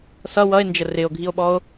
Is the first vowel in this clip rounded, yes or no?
no